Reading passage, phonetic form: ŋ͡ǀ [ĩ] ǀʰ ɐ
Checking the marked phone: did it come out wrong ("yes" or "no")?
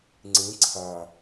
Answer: no